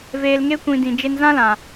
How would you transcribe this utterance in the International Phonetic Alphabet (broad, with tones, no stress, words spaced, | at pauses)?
veː˨lŋe˧kʷĩ˨ dĩ˨d͡ʒe˧nzã˦lã˨